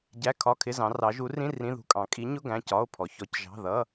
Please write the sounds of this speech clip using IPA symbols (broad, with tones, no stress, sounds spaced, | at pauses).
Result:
ɟ æ˧˥˧ kʰ ɒ˧˥˧ kʰ ɪ˧˥˧ z ɑ̃˨˦ r ɑ˨˦ ʒ u˨˦ r ĩ˧˥˧ r ĩ˧˥˧ ð ṳ˧˥˧ kʼ ɑ̃˨˦ kʼ i˨˦ ɲ ʊ˧˥˧ ɡ æ̃˧˥˧ c ɒ˧˥˧ o̯ pʰ ɔ˨˦ ç ɔ˨˦ c ʒ ɑ̤˧˥˧ ð ʌ˧˥˧